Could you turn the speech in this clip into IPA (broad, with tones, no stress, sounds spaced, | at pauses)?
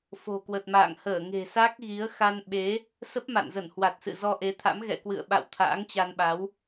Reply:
f o̤˨˩ k w ə˨˩ t̚ m a̰ː˧˨ ŋ h əː˧˩ ŋ e̤˨˩ s a˦˥ k̚ ɣ i˨˦ ə̯ x a˧ n ɓ e˨˦ | s ə˦˥ p̚ m a̰˧˨ n z ə˧˩ n h w a˨˩ t̚ s ɨ̰˧˨ z ɔ˧ ʔ e˨˦ t̪ʰ a̰˧˥ m ɣ ɛ̰˧˨ k w ɨ̰˧˨ ə̯ ɓ a̰˧˨ w t̪ʰ a̰ː˧˥ ŋ t͡ɕ a˧ n ɓ a˨˦ w